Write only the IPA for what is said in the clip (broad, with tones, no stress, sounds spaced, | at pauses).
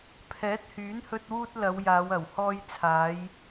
pʰ ɛː˨˥ t̚ h yː˨˥ n h ɵ˧ t̚ w uː˧ t̚ l ɐ˨˧ w j aː˨˧ w ɐ˨˩ w h ɔː˧ j t͡sʰ aː˨˧ j